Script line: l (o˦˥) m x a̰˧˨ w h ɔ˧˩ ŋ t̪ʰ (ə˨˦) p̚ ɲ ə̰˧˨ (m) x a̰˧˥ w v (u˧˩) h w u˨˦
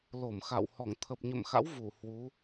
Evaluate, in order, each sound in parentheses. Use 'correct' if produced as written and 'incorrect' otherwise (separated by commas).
incorrect, incorrect, correct, correct